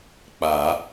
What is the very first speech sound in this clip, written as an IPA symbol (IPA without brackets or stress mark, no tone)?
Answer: k͡p